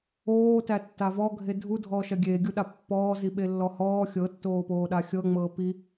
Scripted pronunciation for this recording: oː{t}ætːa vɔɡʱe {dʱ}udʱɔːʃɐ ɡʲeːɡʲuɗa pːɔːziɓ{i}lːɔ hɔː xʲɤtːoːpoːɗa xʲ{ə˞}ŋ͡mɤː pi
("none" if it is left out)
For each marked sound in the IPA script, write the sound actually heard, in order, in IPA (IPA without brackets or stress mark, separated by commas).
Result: t, dʱ, e, ɤ